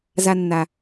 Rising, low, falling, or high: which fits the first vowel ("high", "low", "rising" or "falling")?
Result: high